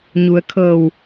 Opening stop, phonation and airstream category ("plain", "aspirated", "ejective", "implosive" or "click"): aspirated